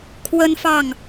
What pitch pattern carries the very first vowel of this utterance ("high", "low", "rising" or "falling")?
high